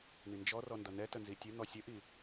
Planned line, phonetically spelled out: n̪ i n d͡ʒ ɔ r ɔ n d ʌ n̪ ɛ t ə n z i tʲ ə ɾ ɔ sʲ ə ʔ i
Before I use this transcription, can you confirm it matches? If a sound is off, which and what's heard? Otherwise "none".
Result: ɾ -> n̪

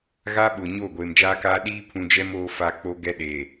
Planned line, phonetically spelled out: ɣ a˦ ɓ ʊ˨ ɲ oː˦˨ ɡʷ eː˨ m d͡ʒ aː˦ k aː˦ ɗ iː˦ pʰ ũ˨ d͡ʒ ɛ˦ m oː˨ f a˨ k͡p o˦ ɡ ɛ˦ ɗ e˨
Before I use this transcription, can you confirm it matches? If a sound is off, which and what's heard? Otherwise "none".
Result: none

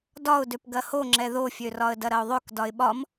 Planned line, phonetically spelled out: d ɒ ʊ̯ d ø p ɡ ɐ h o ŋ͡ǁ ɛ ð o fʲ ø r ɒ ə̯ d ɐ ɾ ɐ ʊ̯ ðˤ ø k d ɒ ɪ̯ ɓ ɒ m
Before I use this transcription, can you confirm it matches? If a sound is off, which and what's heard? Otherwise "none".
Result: none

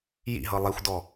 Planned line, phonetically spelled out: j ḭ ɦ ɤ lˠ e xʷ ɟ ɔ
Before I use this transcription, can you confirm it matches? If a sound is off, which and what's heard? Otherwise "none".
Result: ɟ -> d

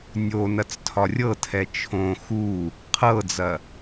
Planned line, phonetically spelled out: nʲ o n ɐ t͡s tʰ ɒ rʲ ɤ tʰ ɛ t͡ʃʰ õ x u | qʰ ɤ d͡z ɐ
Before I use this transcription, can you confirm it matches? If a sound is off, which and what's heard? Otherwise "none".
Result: none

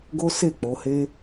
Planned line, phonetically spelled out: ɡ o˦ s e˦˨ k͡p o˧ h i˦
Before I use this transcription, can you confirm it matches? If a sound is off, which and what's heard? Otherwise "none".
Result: i˦ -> e˦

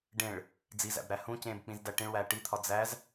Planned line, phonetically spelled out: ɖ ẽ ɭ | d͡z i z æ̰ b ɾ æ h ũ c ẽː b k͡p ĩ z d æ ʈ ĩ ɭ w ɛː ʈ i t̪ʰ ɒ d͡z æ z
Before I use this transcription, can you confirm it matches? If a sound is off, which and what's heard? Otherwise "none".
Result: ɛː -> æː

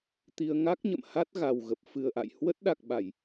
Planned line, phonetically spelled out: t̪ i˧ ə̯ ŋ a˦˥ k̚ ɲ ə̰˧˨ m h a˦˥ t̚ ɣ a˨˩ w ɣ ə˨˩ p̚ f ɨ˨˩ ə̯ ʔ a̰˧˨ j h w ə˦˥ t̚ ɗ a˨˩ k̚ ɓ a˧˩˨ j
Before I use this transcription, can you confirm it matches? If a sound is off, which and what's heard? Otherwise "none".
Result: none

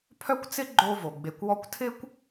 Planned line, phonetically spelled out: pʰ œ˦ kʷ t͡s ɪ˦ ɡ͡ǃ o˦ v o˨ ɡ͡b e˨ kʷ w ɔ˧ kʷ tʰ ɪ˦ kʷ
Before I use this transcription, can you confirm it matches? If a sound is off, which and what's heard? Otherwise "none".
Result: none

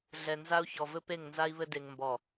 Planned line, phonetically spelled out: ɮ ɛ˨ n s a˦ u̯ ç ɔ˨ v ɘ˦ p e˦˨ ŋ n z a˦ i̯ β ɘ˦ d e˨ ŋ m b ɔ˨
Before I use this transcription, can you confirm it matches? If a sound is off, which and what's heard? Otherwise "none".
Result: s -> z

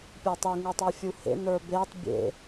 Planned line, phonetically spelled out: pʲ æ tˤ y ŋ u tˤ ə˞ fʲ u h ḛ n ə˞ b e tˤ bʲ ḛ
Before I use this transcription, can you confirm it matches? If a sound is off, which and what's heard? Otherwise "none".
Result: none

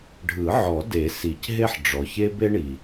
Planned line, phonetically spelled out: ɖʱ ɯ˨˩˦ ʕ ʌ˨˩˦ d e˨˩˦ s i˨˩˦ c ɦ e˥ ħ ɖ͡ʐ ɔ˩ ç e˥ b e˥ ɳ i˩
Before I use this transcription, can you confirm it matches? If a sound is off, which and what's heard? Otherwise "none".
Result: ʌ˨˩˦ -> ɔ˨˩˦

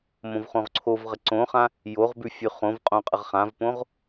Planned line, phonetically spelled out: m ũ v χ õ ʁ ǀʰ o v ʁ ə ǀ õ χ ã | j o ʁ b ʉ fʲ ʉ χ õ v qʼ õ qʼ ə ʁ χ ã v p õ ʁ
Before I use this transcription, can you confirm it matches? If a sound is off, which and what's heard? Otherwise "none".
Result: ũ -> õ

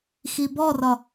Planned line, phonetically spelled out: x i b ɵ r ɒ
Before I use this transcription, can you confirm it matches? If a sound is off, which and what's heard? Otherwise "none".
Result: ɵ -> ɔ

